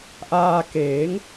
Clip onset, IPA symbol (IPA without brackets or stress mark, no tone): ʔ